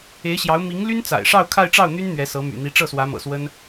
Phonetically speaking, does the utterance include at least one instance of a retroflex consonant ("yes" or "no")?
yes